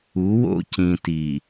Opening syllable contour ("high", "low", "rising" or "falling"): rising